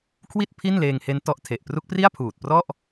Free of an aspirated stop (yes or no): no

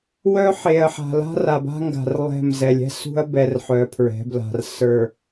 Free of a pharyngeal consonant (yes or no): no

